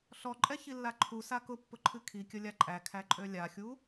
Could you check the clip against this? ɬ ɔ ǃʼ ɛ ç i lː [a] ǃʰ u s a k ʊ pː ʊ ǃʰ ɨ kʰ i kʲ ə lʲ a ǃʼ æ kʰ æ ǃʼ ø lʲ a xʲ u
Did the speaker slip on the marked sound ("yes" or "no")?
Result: no